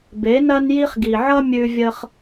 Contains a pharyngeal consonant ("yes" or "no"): yes